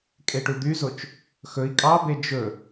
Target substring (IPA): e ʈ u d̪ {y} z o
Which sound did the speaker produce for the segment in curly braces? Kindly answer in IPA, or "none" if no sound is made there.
y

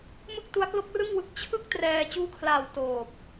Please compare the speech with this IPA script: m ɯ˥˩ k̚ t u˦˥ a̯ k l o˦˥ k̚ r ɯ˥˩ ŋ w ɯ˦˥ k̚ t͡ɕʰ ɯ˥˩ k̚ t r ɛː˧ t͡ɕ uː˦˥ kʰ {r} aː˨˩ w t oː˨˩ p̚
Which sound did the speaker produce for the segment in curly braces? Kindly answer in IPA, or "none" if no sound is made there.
l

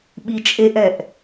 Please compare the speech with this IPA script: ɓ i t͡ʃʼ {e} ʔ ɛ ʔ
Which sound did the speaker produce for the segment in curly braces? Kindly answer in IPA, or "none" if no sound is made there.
e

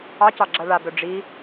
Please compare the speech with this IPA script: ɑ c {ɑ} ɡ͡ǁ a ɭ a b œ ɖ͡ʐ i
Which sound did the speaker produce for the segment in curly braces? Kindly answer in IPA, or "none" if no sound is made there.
ɑ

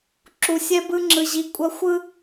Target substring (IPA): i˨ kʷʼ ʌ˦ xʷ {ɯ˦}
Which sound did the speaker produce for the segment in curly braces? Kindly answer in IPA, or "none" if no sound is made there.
ɯ˦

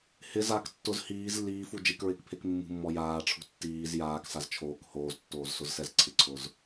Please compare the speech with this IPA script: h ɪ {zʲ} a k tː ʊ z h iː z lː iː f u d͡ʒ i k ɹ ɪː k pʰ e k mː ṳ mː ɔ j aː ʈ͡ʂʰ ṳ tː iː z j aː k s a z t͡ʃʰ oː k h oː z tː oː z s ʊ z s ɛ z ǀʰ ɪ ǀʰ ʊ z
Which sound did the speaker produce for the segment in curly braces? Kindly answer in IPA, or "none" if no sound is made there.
z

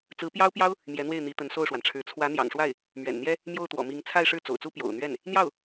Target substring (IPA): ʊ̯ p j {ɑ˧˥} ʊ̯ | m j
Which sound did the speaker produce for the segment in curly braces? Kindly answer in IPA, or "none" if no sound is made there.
ɑ˥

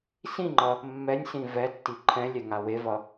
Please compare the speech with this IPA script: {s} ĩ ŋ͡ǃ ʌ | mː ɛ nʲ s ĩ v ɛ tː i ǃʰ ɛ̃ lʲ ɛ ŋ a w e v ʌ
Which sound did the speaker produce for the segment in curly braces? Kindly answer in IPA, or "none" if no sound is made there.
s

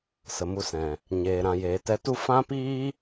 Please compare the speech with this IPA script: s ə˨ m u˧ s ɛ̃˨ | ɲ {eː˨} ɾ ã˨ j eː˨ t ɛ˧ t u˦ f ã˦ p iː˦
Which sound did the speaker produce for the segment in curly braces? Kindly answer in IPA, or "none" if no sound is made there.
eː˨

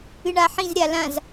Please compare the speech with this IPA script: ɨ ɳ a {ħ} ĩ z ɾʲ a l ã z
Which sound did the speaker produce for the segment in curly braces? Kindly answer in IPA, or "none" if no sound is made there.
ħ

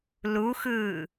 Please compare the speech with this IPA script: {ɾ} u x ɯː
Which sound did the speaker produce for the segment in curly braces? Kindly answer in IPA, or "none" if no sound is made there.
l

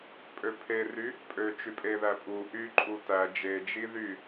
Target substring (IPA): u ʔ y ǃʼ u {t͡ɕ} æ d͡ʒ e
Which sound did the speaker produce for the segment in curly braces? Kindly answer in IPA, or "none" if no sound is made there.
t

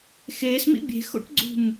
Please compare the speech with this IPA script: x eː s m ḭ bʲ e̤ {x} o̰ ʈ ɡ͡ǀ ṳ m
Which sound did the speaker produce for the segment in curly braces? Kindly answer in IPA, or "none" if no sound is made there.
x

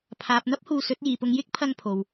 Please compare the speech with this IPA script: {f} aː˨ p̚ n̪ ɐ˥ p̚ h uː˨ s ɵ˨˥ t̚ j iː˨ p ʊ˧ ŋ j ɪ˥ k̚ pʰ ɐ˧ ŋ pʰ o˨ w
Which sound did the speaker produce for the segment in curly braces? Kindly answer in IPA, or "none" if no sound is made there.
pʰ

